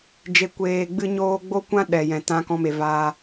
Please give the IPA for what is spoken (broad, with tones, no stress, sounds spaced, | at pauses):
d͡ʒ e˧ kʷ eː˧ ɡ͡b ɨ˦ ɲ oː˦ ɡ͡b o˦ kʷ ã˦ ɗ ɛ˨ j ɛ̃˨ t ã˦ k ɔ̃˦ m e˧ v aː˦